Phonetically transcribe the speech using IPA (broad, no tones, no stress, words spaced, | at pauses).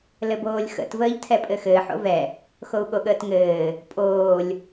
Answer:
lɘboːlʲxə̰t vəːʎtʰɛpʼɘxɘːħ o̰vɛ | xou̯ɠoɠəːtŋɘː | pʼoːlʲ